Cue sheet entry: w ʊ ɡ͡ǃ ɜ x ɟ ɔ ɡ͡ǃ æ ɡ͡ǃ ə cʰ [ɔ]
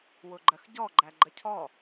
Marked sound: correct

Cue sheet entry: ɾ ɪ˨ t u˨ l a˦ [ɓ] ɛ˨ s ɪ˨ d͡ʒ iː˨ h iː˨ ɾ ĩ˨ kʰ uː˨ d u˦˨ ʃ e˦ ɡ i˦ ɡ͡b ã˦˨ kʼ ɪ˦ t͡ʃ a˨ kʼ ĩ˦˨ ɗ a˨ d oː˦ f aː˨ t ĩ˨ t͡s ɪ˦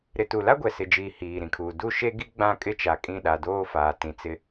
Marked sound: incorrect: ɡʷ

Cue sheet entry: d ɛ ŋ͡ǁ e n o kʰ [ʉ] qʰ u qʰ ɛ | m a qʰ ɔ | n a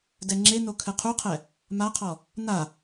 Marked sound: incorrect: ɘ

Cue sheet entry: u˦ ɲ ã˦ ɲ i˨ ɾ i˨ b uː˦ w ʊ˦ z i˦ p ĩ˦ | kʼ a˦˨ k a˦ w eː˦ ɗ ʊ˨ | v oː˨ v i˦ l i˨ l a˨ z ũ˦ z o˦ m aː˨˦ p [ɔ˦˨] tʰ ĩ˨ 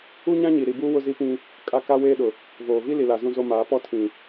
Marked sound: incorrect: ɔ˦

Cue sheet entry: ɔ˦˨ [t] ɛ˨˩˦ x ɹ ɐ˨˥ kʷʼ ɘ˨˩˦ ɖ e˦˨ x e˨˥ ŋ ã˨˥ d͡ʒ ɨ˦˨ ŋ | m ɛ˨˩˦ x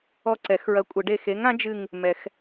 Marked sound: incorrect: ǀ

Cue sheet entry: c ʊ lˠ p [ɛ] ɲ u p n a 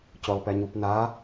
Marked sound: correct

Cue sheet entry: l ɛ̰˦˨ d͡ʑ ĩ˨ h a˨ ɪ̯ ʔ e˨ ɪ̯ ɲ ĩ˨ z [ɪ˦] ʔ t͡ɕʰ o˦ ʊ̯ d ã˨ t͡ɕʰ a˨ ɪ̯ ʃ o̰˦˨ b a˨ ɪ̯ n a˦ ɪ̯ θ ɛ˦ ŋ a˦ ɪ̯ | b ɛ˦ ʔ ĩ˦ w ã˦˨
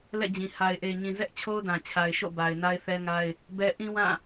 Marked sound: incorrect: ɛ˦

